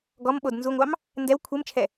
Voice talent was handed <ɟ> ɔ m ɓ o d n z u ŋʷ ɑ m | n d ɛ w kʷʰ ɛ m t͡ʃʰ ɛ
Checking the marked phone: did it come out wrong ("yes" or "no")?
yes